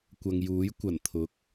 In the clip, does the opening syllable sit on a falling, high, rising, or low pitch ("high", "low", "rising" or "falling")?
low